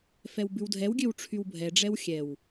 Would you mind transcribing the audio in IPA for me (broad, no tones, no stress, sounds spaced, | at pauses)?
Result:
f ɛ w b ʉ w dʱ ɛ w ɡʲ ø w ʈ͡ʂʰ y w bʱ ɛ ɖ͡ʐ ɛ w xʲ ɛ w